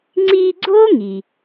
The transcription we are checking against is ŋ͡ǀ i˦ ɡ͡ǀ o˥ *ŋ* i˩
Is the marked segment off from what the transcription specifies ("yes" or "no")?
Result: no